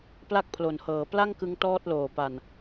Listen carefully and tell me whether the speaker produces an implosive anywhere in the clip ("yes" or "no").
no